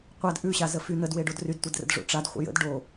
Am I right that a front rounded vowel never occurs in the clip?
no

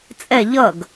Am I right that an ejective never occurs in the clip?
no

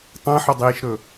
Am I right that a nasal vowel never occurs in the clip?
no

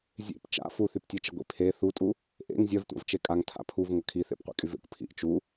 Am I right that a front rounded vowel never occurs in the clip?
no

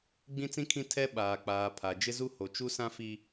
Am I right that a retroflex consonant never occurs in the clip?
yes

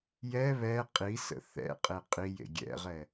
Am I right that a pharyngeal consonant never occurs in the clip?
yes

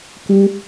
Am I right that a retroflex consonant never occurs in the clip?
yes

